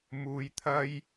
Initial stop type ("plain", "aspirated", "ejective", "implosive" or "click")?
aspirated